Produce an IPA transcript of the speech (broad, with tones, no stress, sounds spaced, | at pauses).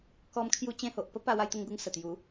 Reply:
k ɔ˧ m kʰ j u˧ t͡ɕ ẽ˧ h o˨ ʔ p ə˦ p a˧ w a˧ j t̪ ə˧ ŋ ɡ u˧ ŋ s ə˨˩ t̪ j u˨˦